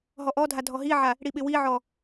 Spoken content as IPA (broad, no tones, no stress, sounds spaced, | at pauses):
ɦ ɔ ʔ ɔ dʱ a dʱ ɔ ɦ i ʕ a | ɽ i ɓ ɪ w i ʕ ɔ